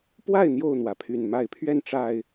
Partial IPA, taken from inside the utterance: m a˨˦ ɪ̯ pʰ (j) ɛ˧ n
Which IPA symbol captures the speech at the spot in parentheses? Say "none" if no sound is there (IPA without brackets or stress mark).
ɥ